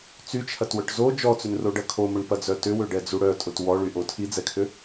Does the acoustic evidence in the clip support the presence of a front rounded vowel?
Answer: yes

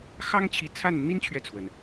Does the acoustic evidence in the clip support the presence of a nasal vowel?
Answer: no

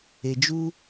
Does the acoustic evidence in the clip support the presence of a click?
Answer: no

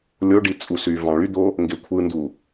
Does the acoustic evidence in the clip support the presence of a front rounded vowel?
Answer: yes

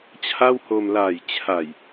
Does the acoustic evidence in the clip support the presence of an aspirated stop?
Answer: yes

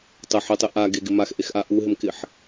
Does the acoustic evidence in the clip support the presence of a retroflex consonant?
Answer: no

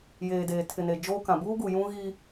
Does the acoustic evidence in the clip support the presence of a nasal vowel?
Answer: yes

